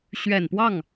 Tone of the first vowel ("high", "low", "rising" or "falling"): low